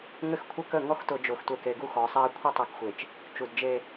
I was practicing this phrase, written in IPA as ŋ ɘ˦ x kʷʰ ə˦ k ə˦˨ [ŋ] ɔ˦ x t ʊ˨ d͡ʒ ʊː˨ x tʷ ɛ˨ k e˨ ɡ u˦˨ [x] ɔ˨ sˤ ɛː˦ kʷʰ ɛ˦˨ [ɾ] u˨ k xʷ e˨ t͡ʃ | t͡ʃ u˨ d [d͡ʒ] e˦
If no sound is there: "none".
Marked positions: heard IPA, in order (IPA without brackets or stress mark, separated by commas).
ŋ, x, tˤ, d͡ʒ